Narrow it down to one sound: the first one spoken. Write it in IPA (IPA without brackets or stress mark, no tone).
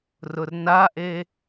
r